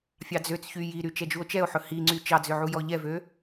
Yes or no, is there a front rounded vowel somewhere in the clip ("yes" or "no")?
yes